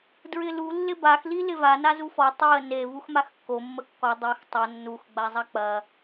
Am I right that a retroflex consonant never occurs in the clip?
yes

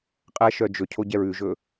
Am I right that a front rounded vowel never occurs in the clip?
no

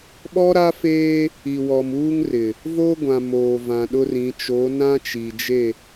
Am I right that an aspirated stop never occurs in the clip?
yes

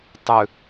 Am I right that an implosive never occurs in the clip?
yes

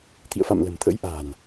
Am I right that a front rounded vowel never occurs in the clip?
yes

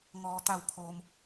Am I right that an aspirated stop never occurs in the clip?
no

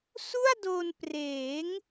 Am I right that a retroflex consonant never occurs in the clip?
yes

